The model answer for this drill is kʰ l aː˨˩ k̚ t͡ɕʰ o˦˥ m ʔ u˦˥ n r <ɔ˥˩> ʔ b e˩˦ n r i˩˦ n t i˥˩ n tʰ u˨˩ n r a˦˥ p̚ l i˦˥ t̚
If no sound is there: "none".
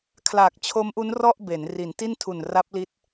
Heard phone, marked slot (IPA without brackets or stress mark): ɔ˥˩